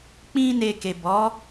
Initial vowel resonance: nasal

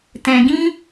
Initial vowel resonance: nasal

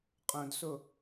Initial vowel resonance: nasal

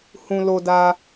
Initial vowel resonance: nasal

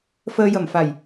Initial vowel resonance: oral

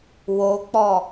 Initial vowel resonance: oral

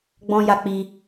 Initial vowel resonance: nasal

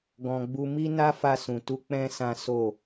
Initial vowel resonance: nasal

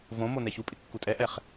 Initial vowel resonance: nasal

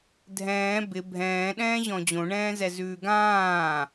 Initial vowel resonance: nasal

